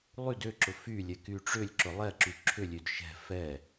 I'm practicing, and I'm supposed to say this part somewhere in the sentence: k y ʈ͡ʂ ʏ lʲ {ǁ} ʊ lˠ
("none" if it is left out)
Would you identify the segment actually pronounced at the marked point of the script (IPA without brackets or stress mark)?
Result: ǁ